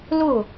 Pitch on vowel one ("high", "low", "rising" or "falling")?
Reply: falling